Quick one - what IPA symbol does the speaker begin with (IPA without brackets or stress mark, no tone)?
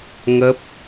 ŋ